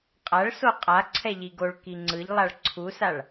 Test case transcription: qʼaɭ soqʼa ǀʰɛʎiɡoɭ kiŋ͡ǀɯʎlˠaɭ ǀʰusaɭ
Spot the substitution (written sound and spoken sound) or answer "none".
none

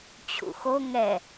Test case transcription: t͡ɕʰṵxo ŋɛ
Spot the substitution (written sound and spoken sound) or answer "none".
none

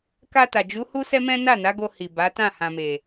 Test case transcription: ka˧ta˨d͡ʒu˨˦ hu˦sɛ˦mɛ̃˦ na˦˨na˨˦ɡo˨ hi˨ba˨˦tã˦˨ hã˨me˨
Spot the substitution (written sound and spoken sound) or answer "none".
o˨ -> o˧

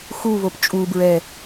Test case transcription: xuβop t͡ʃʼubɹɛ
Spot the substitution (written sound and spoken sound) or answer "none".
none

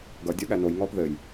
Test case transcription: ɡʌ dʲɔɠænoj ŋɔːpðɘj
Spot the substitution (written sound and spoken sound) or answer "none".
none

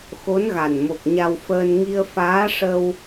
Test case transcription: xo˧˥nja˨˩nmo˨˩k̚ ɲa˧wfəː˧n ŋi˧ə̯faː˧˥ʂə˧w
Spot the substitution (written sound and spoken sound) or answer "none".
j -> ɣ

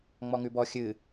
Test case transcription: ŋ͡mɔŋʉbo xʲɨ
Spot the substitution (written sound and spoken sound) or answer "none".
o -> ɔ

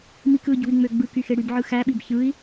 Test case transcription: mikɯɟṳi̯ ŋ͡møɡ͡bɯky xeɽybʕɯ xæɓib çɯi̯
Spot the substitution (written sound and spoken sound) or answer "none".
none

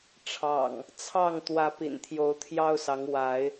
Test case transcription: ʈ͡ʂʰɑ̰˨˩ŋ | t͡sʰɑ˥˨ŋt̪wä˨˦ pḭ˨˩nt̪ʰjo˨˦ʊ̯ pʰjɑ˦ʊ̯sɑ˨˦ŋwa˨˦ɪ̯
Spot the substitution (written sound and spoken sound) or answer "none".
pʰ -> t̪ʰ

